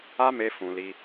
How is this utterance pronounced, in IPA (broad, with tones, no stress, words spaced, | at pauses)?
a˦me˧ fũ˨li˧